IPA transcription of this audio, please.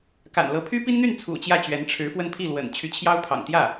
ka̰˨˩nlɤ˧˥ pʰy˥pi˥nn̪y˥˩nt͡sʰṵ˨˩ t͡ɕjä˥˩t͡ɕɥɛ˧˥n ʈ͡ʂʰɻ̩˧˥fwə˥˧n pʰi˥˩lwə̰˨˩n t͡ɕʰy˧˥t͡ɕʰjɑ˥ʊ̯pʰɑ̰˨˩ŋt̪jä˥˩

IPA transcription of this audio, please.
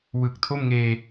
wɯ˨˩k̚tʰo˥˩mŋeː˧

